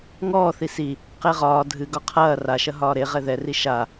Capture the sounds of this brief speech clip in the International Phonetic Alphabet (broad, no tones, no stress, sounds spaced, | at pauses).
ŋ ɔː θ i s i | q e ʁ ɒː dʱ ɨ ɡ ɒ qʰ ɐː r a ʃ ɐ ɦ ɒː ɾ e ʁ ɛ ð ɛ r i ʃ a